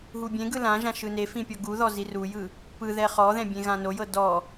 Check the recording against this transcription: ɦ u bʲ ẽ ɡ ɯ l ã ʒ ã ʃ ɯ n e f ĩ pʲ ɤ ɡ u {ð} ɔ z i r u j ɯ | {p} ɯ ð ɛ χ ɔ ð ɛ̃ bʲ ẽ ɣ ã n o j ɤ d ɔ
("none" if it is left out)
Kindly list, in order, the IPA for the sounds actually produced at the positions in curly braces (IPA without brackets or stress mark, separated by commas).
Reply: ð, p